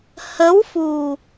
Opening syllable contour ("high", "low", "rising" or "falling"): rising